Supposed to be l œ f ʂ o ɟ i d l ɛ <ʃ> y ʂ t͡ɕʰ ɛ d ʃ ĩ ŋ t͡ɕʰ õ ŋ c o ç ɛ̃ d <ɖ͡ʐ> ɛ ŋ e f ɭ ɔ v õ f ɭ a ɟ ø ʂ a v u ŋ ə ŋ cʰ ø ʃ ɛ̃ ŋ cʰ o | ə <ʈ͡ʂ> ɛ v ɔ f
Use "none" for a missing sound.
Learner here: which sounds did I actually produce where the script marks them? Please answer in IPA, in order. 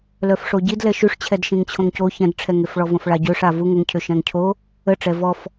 ʃ, ʈ͡ʂʰ, ʈ͡ʂ

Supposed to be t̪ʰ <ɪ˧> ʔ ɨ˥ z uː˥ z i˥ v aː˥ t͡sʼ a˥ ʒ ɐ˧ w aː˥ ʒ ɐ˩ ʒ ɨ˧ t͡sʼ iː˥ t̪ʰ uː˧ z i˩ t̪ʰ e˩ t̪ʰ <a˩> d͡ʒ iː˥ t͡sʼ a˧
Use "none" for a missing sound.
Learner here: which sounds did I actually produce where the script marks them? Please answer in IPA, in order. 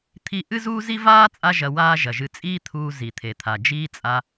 i˧, a˩

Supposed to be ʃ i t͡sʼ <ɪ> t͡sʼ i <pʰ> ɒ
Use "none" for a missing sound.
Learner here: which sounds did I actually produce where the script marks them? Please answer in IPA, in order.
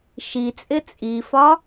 ɪ, f

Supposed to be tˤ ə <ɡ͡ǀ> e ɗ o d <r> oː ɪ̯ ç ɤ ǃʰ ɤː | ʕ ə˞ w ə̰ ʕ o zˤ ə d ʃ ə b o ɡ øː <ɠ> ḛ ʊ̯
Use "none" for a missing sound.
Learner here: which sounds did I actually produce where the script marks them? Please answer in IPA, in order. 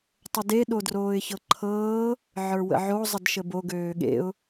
d, r, ɠ

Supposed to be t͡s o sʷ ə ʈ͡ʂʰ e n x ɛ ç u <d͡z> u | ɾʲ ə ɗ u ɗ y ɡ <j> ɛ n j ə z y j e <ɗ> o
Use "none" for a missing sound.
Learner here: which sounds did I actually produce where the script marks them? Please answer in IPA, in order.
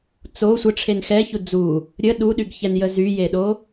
d͡z, ç, ɗ

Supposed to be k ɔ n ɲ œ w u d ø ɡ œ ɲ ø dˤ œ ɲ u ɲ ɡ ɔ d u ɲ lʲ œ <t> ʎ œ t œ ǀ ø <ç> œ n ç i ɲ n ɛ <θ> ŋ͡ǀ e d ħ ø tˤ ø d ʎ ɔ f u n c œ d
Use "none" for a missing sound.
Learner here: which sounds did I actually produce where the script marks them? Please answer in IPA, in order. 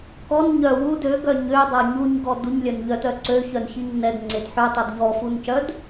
n, ç, d

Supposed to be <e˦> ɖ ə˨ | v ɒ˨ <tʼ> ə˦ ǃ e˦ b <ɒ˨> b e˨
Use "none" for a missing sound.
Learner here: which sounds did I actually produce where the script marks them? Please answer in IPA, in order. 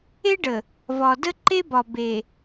e˦, d, ɒ˨

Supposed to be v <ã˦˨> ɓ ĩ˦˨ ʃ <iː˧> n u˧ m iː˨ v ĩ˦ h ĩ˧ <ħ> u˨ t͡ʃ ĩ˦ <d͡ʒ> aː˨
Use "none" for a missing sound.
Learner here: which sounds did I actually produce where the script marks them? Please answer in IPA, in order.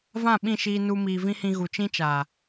ã˦˨, iː˧, ɣ, t͡ʃ

